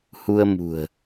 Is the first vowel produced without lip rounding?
no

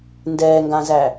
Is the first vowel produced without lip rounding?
yes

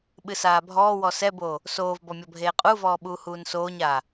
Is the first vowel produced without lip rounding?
yes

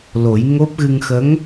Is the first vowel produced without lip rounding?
no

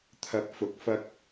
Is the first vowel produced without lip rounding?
yes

